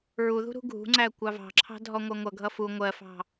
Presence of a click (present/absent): present